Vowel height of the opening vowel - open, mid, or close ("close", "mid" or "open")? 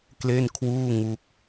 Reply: mid